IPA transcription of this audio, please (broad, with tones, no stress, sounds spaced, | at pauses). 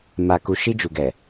m a˨ k u˨ ʃ i˧ d͡ʒ u˨ ɡ ɛ˨